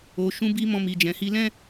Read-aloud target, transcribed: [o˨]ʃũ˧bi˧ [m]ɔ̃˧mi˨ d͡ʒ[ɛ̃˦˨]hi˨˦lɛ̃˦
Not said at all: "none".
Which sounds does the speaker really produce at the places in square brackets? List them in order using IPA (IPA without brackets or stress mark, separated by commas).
o˨, m, ɛ̃˨